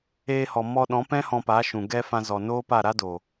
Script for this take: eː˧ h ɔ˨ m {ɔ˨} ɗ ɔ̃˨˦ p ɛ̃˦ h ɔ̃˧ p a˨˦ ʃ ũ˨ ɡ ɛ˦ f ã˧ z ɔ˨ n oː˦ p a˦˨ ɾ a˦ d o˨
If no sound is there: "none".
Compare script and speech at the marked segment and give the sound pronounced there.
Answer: ɔ˧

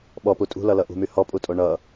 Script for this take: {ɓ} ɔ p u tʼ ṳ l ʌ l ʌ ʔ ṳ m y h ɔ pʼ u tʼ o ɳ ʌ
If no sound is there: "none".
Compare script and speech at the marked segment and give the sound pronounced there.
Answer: ɓ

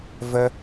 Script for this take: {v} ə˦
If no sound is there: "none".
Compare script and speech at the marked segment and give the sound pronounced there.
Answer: v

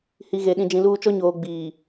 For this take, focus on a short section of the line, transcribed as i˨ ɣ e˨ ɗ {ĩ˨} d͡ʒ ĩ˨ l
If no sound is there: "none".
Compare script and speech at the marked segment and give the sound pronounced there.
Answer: ĩ˨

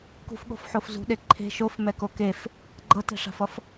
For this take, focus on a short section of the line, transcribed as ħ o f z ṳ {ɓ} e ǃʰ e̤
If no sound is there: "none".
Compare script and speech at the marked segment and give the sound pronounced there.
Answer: ɗ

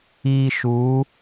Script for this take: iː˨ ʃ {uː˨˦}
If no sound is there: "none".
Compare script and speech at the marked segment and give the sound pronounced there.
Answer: uː˨˦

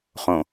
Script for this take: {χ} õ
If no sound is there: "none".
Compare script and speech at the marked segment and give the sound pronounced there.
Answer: χ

